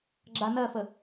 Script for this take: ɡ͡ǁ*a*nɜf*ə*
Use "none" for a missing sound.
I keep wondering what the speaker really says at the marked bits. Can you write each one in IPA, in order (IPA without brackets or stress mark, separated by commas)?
a, ə